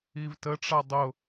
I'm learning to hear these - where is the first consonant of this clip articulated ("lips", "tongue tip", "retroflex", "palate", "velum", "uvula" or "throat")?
lips